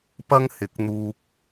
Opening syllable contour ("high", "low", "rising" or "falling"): high